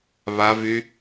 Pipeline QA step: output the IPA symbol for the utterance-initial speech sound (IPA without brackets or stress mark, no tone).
β